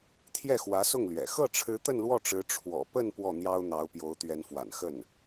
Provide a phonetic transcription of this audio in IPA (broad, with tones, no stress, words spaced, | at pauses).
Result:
t̪ʰjɛ˥˩xwä˧˥sʊ˥˩ŋlɥɛ̰˨˩ xɤ˥˩ʈ͡ʂʰɻ̩˧˥ t̪ə˥˧nlwɔ˥˩ʈ͡ʂɻ̩˧˥ ʈ͡ʂʰwɔ̰˨˩pə˥˧n pwɔ˥˩n̪jɑ˥ʊ̯n̪ɑ˧˥ʊ̯ pjo˧˥ʊ̯t̪ɥɛ˧˥nfwa̰˨˩n xə˥˩n